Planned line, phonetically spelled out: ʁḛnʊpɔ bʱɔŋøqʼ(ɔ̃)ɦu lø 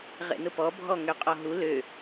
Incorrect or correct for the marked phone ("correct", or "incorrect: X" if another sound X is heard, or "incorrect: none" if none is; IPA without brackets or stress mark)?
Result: incorrect: ɔ